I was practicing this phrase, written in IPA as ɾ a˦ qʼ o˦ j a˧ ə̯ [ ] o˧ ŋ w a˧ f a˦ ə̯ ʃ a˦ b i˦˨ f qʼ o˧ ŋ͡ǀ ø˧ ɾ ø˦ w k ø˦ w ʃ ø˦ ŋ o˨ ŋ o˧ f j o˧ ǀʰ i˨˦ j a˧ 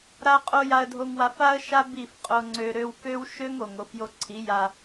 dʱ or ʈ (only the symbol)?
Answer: dʱ